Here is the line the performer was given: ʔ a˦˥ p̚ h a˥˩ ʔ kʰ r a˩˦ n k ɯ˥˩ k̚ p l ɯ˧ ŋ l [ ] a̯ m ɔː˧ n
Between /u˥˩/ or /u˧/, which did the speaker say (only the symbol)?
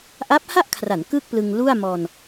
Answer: u˥˩